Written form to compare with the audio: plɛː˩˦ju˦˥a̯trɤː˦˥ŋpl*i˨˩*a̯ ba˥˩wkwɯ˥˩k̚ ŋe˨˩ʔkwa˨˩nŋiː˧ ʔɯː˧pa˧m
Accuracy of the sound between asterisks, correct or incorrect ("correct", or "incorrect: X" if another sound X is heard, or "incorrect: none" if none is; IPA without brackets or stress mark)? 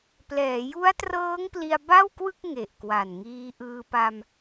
incorrect: i˧